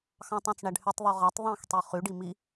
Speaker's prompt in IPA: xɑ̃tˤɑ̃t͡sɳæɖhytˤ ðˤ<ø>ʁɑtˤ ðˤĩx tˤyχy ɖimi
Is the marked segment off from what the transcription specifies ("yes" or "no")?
no